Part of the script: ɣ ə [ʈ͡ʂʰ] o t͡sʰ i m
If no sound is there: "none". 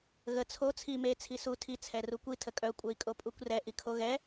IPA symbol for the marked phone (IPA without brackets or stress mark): t͡sʰ